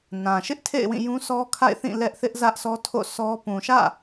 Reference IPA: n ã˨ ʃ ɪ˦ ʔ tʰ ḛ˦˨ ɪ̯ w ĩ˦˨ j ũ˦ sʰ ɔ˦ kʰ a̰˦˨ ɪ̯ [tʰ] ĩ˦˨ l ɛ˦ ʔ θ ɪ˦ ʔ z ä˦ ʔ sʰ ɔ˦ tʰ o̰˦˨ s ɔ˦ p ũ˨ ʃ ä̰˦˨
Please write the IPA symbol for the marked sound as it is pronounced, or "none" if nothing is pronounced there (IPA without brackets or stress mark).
θ